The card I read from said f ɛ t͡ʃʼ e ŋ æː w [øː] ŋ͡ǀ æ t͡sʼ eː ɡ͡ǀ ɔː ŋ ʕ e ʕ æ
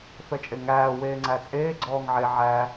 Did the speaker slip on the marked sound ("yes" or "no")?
yes